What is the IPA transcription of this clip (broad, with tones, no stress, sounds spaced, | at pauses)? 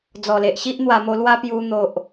d͡z ɔ˨˩ l e˨ ʔ ɕ i˦ ʔ n̪ w a˧ m o˧ l w a˦ p j u˧ n̪ o˨ ʔ